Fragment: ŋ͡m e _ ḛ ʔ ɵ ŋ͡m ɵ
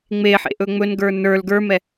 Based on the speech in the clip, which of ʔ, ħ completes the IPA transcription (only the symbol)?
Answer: ħ